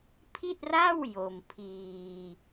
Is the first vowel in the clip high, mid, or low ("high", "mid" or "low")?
high